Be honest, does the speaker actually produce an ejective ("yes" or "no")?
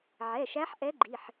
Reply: no